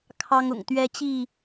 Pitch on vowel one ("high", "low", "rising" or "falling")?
high